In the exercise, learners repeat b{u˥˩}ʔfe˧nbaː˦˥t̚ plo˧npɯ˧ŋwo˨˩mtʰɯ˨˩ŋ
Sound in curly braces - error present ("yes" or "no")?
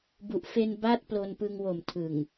yes